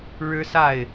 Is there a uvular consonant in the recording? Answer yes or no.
no